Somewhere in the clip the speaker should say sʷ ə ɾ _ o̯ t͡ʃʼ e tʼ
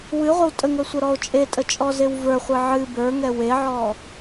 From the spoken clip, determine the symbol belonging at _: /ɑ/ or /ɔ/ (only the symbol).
ɔ